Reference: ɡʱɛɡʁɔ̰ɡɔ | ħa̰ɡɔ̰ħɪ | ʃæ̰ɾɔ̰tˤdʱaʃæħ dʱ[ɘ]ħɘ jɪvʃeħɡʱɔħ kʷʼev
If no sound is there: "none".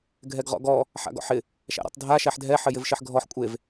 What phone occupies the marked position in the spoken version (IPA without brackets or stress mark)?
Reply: ɛ